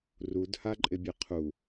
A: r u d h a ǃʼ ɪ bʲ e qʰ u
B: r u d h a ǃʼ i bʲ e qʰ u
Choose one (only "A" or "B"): A